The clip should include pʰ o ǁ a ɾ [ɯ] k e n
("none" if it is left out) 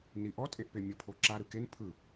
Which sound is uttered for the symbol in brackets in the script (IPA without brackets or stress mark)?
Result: ɯ